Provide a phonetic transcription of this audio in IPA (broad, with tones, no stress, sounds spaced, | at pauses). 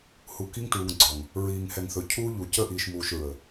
h u˨ k i˦ ŋ t uː˨ ŋ ɡ͡ǀ ɔ˨ ŋ | ɹ iː˨ ŋ h ɛ˨ ŋ θ ɵ˨ cʰ uː˦ ʎ u˨ c ə˦˨ ʔ iː˨ ʃ m uː˨ ʃ ɹ ə˨